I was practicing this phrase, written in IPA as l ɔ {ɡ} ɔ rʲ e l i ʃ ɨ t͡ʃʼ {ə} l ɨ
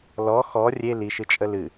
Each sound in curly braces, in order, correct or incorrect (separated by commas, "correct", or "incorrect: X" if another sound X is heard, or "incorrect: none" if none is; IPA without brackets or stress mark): incorrect: x, correct